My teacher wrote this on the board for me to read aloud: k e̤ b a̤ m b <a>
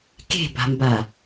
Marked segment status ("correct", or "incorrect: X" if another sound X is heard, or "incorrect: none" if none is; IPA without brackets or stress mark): correct